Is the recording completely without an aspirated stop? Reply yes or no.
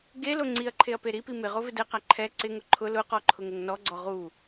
no